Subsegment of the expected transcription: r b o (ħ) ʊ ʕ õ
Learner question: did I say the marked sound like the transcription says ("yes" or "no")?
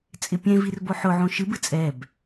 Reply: yes